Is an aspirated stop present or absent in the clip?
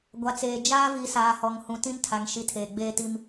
present